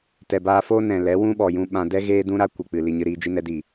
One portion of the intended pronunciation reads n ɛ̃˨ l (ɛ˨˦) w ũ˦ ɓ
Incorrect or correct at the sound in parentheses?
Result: correct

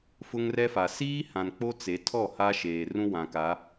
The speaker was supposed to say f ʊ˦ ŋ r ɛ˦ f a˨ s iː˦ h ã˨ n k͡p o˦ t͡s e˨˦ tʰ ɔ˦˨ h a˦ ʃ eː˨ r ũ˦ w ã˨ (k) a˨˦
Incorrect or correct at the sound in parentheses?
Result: correct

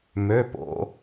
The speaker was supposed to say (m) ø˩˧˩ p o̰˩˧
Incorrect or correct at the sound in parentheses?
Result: correct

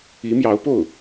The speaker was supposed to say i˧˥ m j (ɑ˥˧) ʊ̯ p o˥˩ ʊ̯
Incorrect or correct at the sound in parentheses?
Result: incorrect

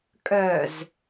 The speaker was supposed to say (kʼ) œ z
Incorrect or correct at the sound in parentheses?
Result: correct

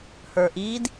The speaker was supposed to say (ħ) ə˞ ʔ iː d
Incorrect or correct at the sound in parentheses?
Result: incorrect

